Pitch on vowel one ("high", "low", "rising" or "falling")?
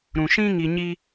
low